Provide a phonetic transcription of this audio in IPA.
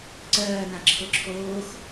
ǀɜːnã ǁʰʊǁʰoːx

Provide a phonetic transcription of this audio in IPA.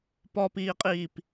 pɔpiːqʼiːp

